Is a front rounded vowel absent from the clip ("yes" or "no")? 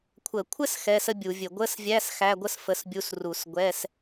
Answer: yes